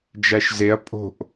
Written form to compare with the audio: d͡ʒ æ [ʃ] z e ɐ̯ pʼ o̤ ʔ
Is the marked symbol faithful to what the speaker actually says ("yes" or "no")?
yes